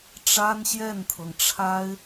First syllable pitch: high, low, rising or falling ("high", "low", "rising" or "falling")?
high